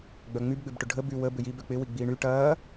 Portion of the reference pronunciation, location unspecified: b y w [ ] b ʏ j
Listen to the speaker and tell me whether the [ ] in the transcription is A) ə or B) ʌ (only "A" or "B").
A